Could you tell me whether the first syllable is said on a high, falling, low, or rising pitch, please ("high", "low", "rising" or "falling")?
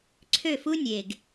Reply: falling